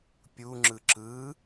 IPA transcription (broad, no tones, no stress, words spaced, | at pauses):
pʲuŋ͡ǁɯ ǁɯ